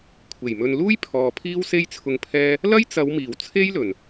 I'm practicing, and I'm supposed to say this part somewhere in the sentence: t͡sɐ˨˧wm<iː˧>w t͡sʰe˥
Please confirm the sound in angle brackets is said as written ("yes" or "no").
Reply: no